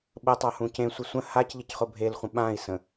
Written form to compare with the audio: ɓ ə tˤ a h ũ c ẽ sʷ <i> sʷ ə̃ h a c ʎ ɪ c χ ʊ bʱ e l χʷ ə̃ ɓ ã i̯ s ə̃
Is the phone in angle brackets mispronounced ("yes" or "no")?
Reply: yes